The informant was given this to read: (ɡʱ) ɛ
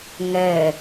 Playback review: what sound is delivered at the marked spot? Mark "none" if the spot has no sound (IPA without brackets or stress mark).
ŋ